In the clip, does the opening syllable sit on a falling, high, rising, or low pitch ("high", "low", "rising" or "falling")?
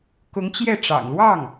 rising